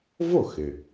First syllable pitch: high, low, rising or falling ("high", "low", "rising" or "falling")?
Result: falling